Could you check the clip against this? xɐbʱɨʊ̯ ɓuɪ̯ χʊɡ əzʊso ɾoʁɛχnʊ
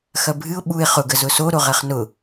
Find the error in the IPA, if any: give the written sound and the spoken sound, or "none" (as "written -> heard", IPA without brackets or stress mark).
none